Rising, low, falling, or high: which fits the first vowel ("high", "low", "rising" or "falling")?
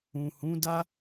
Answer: low